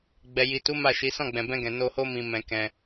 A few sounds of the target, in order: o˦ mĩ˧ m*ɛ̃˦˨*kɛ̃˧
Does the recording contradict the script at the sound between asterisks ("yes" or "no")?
yes